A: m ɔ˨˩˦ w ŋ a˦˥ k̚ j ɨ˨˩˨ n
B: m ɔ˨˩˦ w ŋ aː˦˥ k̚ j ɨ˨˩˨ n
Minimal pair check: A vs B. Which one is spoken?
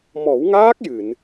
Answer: B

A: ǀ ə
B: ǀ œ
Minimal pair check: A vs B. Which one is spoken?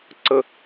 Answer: A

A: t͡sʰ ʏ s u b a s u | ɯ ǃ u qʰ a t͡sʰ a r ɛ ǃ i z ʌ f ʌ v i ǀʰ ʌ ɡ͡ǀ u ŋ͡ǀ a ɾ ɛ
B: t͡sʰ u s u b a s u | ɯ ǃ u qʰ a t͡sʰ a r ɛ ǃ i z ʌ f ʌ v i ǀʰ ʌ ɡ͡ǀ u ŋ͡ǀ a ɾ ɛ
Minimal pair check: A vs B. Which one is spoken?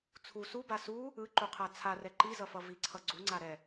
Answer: B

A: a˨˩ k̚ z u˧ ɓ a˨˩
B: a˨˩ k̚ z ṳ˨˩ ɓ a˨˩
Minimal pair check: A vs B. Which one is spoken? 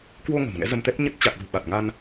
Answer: B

